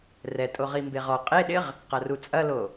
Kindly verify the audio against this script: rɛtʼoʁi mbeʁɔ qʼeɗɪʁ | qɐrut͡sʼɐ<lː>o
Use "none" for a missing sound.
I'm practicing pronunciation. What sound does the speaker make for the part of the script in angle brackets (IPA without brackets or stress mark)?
l